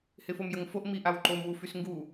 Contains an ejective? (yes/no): no